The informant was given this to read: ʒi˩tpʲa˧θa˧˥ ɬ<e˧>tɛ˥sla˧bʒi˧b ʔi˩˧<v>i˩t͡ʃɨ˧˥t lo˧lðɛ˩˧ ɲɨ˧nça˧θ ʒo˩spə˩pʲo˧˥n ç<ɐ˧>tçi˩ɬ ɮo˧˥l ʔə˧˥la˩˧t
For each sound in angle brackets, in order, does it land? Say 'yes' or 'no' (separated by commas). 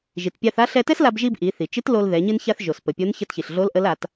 no, no, no